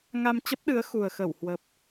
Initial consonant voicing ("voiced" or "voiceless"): voiced